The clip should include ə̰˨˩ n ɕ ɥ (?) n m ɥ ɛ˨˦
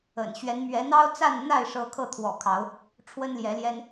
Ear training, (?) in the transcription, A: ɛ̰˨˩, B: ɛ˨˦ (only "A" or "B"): B